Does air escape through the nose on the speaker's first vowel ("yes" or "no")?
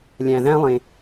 yes